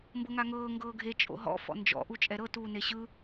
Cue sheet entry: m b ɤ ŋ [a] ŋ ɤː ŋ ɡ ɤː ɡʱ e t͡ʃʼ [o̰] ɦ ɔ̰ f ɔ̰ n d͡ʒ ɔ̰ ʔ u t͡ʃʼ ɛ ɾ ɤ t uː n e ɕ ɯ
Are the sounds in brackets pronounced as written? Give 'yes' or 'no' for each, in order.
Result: yes, yes

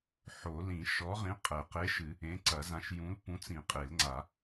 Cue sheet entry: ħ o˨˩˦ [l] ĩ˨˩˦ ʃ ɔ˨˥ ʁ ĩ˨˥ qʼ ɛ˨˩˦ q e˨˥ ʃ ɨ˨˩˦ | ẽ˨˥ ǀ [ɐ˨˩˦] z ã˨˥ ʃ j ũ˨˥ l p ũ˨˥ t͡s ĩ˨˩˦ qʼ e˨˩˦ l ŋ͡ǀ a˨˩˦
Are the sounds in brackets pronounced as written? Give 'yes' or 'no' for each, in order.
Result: yes, yes

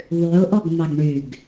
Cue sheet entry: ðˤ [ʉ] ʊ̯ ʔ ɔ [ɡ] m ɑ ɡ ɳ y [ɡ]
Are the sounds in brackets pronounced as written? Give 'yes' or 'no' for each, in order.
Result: yes, yes, yes

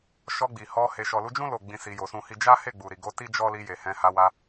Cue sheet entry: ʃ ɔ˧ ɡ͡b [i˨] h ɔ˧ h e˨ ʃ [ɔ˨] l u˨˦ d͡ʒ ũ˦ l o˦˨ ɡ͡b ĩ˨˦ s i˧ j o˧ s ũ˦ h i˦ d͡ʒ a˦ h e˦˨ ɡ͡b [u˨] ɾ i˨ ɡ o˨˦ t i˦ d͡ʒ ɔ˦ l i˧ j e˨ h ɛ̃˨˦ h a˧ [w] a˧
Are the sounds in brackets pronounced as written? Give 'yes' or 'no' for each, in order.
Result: yes, yes, yes, yes

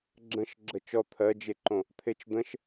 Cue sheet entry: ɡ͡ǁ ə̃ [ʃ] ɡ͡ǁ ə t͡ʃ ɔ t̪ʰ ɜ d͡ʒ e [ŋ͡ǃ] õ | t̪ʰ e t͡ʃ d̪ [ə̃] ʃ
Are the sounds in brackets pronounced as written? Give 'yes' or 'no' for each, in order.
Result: yes, no, yes

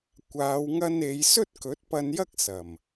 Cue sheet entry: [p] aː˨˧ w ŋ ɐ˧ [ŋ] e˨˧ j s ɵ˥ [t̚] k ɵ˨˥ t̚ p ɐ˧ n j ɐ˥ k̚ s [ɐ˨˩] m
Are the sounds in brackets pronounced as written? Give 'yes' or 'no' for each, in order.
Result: no, no, yes, yes

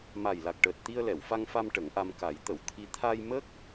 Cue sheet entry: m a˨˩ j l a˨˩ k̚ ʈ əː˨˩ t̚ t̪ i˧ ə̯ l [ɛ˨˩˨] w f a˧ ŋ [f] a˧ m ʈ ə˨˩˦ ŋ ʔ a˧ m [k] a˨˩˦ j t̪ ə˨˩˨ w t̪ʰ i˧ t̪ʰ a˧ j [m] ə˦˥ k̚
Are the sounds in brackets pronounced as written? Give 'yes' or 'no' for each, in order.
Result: yes, yes, yes, yes

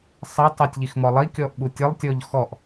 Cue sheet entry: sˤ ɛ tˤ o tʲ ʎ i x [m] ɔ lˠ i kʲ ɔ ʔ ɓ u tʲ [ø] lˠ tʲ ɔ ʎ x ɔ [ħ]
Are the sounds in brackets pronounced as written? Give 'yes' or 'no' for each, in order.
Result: yes, no, no

